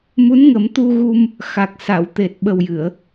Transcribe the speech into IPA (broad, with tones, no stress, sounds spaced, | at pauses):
m u˧˥ n ŋ ə˨˩˦ m t̪ u˧ ɣ u˧ m | x a˨˩ k̚ s a˨˩˨ w t̪ e˨˩ t̚ ɓ ə˨˩ w j ɨ˨˩˨ ə̯